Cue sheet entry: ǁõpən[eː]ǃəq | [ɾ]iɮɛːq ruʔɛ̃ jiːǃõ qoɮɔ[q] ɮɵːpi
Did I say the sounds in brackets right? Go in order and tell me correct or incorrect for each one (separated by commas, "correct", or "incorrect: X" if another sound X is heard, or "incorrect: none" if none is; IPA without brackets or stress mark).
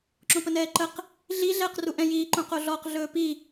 incorrect: ɛː, incorrect: ɮ, correct